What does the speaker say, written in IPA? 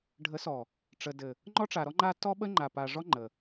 ɖʱ ə˨˦ s ɔ˨ | ʈ͡ʂ ə˨ d ɘ˨ | ŋ͡ǃ ɔ˦ ʈ͡ʂ a˨ ɾ ɔ˦ ŋ͡ǃ a˦ t ɔ˦ ɓ ə˦ ŋ͡ǃ a˨ p a˨ ʐ ɔ˦ ŋ͡ǃ ə˨

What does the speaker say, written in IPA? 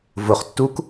v ʊ χ tː u k

